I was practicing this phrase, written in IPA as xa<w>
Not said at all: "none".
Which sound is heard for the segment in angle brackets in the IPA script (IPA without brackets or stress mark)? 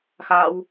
w